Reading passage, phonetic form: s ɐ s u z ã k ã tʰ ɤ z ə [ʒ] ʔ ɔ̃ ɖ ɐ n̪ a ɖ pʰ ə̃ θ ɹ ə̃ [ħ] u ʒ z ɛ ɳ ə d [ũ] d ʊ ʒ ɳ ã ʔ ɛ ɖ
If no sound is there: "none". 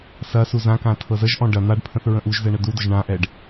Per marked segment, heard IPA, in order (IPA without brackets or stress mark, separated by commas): ʒ, ʔ, u